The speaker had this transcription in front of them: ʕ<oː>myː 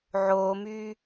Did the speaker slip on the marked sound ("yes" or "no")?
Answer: no